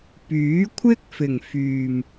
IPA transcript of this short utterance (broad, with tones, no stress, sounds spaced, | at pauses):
p yː˨˥ kʷʰ ɪ˥ k̚ f ɪ˨˩ ŋ f yː˨˩ m